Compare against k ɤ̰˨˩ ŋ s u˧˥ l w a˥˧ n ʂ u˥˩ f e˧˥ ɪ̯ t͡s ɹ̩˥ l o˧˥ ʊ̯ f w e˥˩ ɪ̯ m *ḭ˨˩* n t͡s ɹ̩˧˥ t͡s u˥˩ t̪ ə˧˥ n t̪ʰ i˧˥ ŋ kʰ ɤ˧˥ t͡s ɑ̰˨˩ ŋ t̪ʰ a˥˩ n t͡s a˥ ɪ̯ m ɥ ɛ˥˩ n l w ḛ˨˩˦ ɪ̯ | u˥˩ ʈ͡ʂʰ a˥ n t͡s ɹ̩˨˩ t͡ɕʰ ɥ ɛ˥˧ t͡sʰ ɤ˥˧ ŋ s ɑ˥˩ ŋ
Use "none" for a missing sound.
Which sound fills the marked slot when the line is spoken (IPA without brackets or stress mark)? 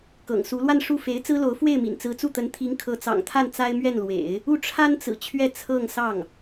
ḭ˨˩